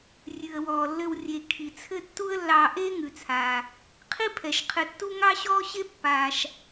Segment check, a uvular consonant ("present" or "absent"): present